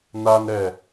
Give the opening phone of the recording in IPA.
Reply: n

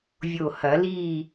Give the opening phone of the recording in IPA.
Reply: vʲ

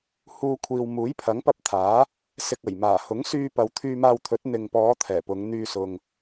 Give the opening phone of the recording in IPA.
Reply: h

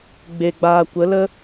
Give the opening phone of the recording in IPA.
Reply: ɡ͡b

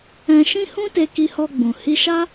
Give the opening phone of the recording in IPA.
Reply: ɛ̃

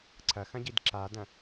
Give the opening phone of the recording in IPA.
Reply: ǀʰ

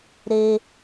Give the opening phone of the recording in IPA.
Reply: ɾ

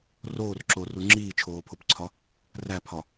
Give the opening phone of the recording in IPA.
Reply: r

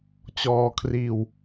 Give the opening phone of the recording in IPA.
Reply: t͡ɕ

